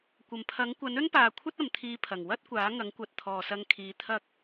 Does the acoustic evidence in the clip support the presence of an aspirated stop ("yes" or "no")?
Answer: yes